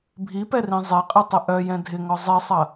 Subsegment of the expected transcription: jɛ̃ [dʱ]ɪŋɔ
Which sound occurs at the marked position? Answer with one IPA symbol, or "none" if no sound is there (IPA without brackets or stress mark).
dʱ